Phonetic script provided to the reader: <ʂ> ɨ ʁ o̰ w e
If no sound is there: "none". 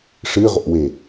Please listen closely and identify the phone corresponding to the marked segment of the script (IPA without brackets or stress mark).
ʂ